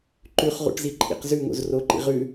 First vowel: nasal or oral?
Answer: oral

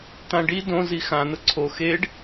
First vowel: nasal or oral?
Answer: nasal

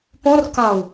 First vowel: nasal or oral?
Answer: nasal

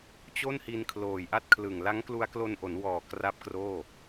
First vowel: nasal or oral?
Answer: oral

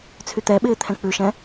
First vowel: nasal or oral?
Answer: oral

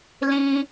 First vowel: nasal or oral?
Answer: nasal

